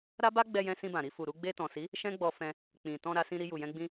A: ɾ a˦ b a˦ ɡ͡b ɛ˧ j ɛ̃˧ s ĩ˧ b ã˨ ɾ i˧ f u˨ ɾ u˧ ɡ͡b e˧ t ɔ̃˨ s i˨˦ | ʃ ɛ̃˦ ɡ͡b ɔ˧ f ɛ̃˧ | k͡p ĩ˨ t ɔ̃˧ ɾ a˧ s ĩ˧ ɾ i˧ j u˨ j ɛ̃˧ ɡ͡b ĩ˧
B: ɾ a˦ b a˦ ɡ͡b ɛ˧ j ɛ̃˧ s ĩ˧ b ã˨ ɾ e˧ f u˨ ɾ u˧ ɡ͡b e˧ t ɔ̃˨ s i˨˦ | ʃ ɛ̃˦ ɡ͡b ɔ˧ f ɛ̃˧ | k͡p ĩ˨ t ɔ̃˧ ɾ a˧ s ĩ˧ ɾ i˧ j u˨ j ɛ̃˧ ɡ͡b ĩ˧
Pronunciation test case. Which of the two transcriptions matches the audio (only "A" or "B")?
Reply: A